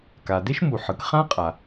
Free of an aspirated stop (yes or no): yes